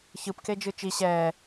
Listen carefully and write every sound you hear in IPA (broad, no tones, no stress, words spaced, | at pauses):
çɯpked͡ʒɯ t͡ʃi ɕɛː